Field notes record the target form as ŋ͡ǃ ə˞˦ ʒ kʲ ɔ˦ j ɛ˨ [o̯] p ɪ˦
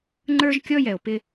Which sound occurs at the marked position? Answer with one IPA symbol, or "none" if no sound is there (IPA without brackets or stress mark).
o̯